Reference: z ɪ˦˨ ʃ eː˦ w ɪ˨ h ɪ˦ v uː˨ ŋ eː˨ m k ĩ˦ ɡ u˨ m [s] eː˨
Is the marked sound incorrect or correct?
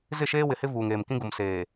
correct